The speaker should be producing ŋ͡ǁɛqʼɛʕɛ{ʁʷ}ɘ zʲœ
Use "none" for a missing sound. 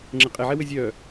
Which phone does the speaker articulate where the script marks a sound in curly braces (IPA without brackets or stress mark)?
w